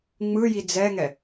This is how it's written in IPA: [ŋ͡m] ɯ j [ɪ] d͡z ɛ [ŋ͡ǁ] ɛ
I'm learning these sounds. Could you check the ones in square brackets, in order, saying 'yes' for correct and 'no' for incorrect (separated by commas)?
yes, no, no